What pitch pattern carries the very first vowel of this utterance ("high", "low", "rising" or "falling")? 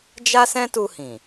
high